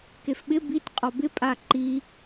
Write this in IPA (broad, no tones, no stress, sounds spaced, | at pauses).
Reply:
k e f ɓ ɪ b i t qʼ ɔ b ɪ pʼ a ǃ i